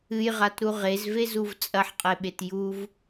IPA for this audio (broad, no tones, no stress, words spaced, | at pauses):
ɨjʁatɾu ʁezvezuv t͡sʼɐħqʼeɓet juv